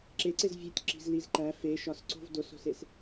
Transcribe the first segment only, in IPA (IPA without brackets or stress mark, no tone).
ǁ